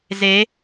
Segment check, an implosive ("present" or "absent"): absent